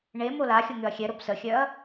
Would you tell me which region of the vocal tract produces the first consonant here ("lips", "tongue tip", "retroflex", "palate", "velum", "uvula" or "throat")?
retroflex